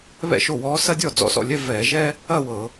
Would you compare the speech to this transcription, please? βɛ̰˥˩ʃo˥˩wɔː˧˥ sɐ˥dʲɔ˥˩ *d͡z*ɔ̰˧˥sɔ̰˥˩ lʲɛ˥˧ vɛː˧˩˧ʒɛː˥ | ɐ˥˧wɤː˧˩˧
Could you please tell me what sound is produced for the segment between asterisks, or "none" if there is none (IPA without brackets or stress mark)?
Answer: d͡z